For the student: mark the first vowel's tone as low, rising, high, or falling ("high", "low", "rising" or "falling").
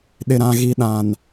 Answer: low